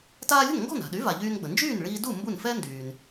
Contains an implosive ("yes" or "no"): yes